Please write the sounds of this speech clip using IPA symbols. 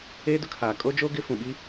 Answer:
eː˦dʊ˦kʰaː˨ kʼo˦d͡ʒo˦ ɡɪ˦ fũ˨ɓi˦

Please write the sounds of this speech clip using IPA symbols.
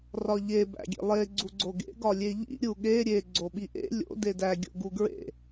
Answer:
rɒʎe bæ̰ɡʲḛlˠe ɡ͡ǀuɡ͡ǀoɡḛ ɡɒlʲeʎḭ ɾʲuɠe ɾʲe ɡ͡ǀoɓiʔḛ lʲo̰ dedæ ɡʲo̰ɡuɡɹḛ

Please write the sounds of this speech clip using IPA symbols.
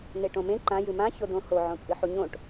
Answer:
neʈõmẽ ǃã jɨmã çodõho ʕõt͡sʼɨħuɲõʈ

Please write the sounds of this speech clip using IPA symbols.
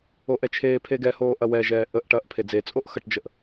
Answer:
oʔɛt͡ʃʰeːpʰe ɡɛhoː ʔɐwɛʒɛː ʔəʔʈɐʔ pʰed͡zet͡sʼoʔ xɐʈd͡ʒəʔ

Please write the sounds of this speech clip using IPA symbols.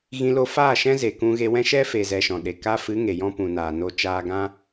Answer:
ɣĩ˧lo˧faː˦˨ ʃɛ̃˦ze˨ kũ˧ɣe˧wɛ̃˦ ʃɛ˦fe˨zɛ˨ ʃɔ̃˨ɗe˨ka˦ fɨ˨˦ŋe˨jɔ̃˧ pũ˨naː˨no˧ t͡ʃaː˧ɡã˦

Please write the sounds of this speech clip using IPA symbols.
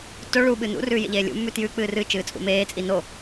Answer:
to ɭu ɓɨnṵrʉː jḛʎeːlʲṵmːʉ tjʉk͡pɨː rɨ t͡ʃɨːt͡sʼṵmeːt͡sʼi no

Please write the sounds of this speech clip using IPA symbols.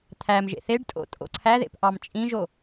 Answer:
t̪ʰæm ʒḛθeɖtʼo̰ tʼo̰ǀʰæðḛp ʔɑmt͡ʃʼĩʒo

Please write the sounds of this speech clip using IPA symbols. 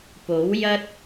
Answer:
po˨˥wjɐ˥t̚

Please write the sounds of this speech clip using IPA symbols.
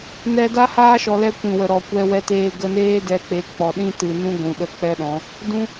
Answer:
nɛ˧da˦haː˦ ʃɔ˧lɛ˦ kʷĩ˨wə˨ ɾɔ˨kʷɛ˧wɛ˧teː˧ ɡə˧neː˦ dɛ˧k͡pe˨˦ k͡pɔ˨ɗĩ˦tɨ˨nũ˦ ɡʷũ˨ɗə˦˨k͡pɛ˦ɗɔ̃˨˦ | dũ˦

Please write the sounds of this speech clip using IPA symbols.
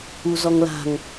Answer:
uzɔŋla̤ŋ

